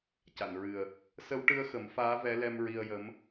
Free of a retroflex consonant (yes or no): no